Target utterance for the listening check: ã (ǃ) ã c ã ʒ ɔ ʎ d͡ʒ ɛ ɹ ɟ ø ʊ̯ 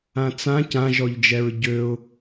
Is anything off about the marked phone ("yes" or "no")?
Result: yes